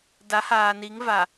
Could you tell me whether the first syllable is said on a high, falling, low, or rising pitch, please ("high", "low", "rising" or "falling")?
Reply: rising